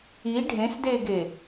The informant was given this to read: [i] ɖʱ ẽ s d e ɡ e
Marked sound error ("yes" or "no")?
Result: no